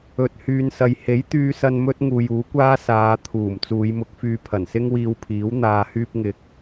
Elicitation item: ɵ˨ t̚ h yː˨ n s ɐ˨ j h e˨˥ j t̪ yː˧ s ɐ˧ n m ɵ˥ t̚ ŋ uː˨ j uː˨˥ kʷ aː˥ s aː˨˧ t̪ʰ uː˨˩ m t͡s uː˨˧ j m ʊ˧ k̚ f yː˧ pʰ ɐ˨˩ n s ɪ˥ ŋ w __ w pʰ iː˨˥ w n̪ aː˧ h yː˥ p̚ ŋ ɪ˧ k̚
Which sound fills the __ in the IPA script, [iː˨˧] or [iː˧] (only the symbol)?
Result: iː˧